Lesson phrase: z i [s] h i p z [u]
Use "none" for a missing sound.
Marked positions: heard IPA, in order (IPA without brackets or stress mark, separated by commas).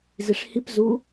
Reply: ʂ, u